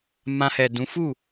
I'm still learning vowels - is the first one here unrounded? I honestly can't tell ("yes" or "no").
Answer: yes